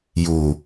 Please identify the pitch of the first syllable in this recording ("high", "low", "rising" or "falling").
low